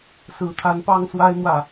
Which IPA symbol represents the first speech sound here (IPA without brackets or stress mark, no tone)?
s